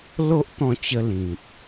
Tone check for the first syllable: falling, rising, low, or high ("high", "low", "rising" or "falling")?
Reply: high